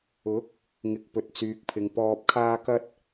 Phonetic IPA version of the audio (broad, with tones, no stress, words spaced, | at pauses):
ʊ˨˥k̚ | ŋɪ˨˥k̚pɵ˨t̚t͡syː˨k̚pʰɪ˨ŋ pɔː˨p̚kʰaː˧kɐ˧t̚